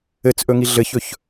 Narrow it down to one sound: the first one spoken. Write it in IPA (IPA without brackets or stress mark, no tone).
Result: ɘ